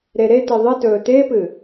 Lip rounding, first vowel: unrounded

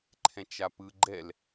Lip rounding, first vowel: unrounded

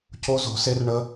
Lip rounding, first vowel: rounded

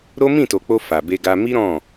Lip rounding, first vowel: rounded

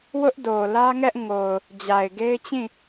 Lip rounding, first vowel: rounded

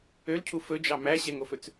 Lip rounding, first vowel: rounded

